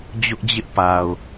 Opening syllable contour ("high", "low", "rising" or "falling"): high